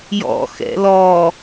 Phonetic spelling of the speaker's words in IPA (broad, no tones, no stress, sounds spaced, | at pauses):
j ɔ̰ x ɛ̰ l ɔ